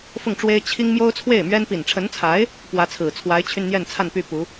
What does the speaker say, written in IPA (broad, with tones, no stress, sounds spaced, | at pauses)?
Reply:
f ʊ˥˩ ŋ ʈ͡ʂ w e˥ ɪ̯ t͡ɕʰ i˥ ŋ m j o˥ ʊ̯ t͡sʰ w e˥˩ ɪ̯ m ɥ ɛ˥ n p i˨˩ n ʈ͡ʂʰ ə˧˥ n t͡sʰ a˧˥ ɪ̯ | p w ä˧˥ t͡sʰ ɹ̩˨˩ t͡sʰ w a˧˥ ɪ̯ t͡ɕʰ y˧ n n̪ j ɛ˥˧ n t͡sʰ a˥˧ n p y˥˩ p u˧˥